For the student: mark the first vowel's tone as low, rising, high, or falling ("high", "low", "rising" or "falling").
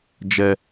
high